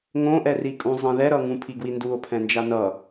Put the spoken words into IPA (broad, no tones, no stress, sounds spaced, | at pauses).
ŋ õ ʔ ɛ r i kʼ ũ zˤ ĩ ð ɛ ɾ ʌ ŋ ũ pʰ i ɡ w i n d u o̯ pʰ ɛ̃ n d͡ʒ a n ʌ